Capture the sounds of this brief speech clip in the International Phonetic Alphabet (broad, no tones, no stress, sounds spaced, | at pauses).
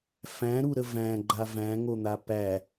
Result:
f æ̃ ɾ u ɾ ə v æ̃ ɡ͡ǃ a v æ̃ ŋ o n̪ a p æ